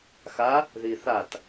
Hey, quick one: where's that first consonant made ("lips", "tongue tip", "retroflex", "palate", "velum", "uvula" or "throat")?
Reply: velum